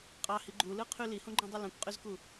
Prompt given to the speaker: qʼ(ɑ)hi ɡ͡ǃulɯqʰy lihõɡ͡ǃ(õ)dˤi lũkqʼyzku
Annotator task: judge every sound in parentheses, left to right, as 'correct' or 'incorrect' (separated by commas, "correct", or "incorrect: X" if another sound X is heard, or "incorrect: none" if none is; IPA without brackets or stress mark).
correct, incorrect: ũ